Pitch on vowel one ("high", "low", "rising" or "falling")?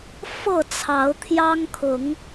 falling